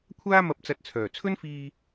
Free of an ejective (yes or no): yes